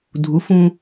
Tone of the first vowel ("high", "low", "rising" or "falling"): rising